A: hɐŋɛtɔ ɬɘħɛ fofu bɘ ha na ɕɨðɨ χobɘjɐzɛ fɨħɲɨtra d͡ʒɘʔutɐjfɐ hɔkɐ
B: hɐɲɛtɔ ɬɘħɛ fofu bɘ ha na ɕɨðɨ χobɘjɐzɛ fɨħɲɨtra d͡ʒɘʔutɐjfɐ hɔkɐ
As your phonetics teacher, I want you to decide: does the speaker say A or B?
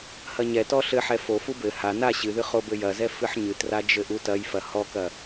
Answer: B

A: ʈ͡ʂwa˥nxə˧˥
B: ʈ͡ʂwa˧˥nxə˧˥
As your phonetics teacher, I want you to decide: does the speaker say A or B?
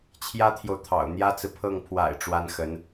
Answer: A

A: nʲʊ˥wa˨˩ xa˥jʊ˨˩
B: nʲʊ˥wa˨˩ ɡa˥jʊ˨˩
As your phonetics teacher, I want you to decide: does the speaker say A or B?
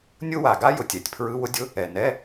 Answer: B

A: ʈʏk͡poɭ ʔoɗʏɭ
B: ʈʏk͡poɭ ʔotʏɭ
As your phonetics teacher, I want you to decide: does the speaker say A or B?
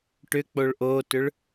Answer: B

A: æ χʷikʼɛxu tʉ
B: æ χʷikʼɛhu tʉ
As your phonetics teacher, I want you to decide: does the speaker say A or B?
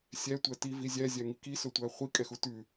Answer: A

